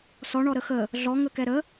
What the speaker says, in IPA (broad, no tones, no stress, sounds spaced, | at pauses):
s ɔ ɳ ɔ ɾ ə x ə | ɮ ɔ ŋ ə k ɛ ɾ ə